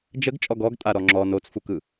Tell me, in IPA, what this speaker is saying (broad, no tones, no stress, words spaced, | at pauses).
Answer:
d͡ʒəɡ t͡ʃʼɔɡɔɡ tʼaɾɔŋ͡ǁɔ not͡sfukɯ